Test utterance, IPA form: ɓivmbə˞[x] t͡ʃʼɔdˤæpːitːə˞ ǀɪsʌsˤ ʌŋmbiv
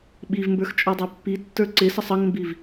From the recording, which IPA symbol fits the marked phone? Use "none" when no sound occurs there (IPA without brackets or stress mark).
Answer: x